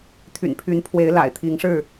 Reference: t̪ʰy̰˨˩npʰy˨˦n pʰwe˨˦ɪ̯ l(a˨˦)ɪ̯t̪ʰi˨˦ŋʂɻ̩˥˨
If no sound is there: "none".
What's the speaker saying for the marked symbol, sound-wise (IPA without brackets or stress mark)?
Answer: a̰˨˩